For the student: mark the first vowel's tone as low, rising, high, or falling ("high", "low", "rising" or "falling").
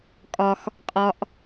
low